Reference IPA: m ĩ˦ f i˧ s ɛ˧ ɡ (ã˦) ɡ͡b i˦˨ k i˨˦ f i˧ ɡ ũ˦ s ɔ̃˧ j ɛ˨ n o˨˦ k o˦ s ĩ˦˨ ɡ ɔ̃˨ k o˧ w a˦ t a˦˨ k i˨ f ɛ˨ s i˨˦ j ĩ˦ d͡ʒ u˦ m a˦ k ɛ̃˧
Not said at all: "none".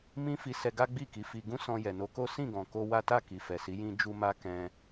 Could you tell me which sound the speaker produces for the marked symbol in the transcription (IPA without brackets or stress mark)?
a˦